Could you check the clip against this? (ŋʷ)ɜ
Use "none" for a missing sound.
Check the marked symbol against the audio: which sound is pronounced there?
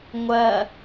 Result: ŋʷ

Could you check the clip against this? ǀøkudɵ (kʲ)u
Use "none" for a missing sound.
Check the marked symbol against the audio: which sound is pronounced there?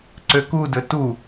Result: t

